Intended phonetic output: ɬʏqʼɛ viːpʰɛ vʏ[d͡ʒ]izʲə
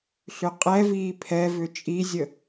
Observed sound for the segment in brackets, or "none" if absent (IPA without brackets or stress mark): t͡ʃʼ